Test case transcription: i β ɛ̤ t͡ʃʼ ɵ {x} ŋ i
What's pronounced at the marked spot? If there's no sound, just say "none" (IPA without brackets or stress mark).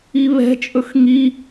x